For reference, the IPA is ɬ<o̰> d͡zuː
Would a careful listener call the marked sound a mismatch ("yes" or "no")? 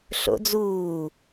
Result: no